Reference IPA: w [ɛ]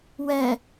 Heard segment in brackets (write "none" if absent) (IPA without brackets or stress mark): ɛ